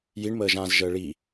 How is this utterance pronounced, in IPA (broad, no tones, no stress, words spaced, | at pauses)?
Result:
jiɳməːʒãːz ʒəːɭi